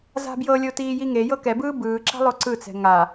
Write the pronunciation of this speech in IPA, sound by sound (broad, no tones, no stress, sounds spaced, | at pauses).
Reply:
z a̤ b j ɤ lʲ o t iː j i ŋ e j ɤ k ɛ b ɯː b ɯː ǁ a̤ lˠ o ǀ ɯ t͡s ɛ̤ ŋ a